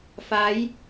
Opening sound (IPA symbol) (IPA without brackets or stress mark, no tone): f